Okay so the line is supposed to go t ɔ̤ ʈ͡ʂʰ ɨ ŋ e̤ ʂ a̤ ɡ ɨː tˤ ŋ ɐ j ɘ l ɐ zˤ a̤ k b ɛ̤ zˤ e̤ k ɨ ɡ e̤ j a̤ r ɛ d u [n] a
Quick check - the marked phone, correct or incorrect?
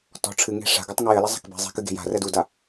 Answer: incorrect